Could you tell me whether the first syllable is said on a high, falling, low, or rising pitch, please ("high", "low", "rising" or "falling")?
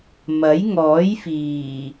rising